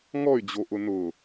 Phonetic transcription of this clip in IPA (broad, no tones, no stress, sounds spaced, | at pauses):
ŋ ɔ y̯ d͡ʑ o ʔ ʊ n ʊ